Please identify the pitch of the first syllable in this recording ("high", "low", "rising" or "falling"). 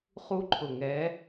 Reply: high